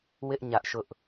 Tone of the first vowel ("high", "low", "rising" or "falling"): high